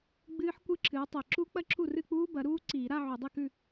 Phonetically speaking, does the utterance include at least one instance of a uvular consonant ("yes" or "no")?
no